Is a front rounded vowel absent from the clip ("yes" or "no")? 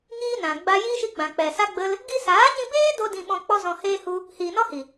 yes